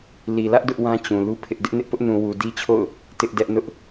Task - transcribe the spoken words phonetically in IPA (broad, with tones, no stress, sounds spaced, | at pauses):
l i˨ l ä˦ ʔ d ʊ˦ ʔ w ã˦ t͡ɕ ũ˨ l u˦ pʰ ɪ˦ ʔ d ɪ˦ ʔ n ɪ˦ ʔ p ʊ˦ ʔ n ũ˨ w u˨ d i˦ t͡ɕʰ o̰˦˨ ʊ̯ | t ɪ˦ ʔ d ɛ˦ ʔ n ʊ˦ ʔ